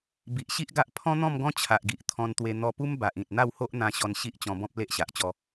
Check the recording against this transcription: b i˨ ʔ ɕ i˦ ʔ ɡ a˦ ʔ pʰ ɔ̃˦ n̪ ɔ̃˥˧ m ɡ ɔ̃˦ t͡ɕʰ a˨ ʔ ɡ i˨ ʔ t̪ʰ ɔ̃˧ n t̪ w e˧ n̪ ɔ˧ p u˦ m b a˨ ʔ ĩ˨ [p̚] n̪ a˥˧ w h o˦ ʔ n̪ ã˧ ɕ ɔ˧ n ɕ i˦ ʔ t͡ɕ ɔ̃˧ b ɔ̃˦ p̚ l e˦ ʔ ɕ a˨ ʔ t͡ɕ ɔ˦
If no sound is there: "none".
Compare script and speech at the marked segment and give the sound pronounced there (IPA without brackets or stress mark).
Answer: t̚